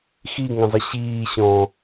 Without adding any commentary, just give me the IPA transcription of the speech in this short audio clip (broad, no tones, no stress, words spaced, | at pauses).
xiŋə̃zˤə ɕiːɕɔ̃ː